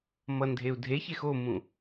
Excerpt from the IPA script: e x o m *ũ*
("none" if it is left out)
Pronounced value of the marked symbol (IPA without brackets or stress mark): ũ